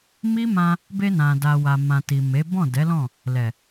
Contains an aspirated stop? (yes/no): no